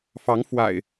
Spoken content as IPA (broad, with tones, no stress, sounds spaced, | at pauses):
f ɑ˨˦ ŋ f w a̰˨˩ ɪ̯